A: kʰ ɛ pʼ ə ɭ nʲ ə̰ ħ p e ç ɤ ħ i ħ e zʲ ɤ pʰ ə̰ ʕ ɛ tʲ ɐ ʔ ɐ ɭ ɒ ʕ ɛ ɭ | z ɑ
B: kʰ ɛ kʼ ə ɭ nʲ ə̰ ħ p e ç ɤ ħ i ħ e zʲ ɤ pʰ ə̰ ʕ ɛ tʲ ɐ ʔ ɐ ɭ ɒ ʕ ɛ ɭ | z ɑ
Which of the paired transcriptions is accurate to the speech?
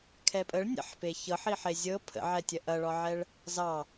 A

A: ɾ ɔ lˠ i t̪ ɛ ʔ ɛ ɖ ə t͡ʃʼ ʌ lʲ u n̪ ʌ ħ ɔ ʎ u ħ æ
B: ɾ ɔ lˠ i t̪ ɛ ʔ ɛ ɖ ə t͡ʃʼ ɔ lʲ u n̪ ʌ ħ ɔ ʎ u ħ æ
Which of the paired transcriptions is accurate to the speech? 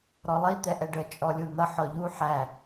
B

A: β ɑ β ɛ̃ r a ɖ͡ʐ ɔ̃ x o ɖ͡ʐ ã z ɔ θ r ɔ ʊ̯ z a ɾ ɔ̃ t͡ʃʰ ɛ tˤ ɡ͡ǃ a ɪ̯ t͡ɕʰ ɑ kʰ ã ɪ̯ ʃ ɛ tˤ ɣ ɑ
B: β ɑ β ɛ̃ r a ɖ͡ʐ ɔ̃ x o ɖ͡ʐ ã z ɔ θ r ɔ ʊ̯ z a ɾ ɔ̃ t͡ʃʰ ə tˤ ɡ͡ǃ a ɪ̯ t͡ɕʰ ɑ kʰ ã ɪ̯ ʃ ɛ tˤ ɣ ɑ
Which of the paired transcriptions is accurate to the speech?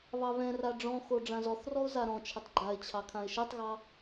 B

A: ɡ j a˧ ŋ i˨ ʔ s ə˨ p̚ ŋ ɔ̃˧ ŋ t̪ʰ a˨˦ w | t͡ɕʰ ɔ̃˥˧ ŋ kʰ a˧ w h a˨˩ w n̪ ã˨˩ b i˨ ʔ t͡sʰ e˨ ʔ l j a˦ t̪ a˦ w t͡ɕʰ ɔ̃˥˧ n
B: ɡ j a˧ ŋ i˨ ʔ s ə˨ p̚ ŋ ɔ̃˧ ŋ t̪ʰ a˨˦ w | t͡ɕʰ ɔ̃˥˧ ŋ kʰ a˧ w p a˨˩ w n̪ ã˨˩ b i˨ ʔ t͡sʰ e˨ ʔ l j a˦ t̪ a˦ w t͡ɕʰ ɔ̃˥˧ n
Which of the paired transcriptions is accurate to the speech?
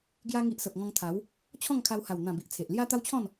A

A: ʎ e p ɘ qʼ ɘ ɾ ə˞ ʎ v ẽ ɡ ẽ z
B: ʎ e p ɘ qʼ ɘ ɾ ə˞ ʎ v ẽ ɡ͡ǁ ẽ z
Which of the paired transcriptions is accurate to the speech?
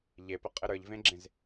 B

